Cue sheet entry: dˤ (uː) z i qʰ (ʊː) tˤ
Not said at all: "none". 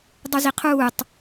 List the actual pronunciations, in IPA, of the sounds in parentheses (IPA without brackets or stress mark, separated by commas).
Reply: u, uː